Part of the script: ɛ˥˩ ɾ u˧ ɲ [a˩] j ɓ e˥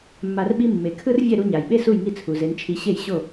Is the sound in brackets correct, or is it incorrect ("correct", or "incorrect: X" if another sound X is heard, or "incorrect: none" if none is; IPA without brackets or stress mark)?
correct